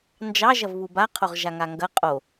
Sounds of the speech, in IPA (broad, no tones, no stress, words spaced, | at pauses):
nd͡ʒɑ ʒɐvβuba qʰoʁʒaŋaŋɡɐ qʼo